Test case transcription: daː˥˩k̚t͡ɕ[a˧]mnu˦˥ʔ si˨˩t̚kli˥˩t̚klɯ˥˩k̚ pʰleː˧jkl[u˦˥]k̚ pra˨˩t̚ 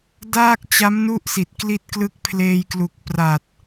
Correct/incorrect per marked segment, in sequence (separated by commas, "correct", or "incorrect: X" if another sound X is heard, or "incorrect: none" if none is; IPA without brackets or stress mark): incorrect: a˦˥, incorrect: u˨˩